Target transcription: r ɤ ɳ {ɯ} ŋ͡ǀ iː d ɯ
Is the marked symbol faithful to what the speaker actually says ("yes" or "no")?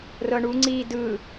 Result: no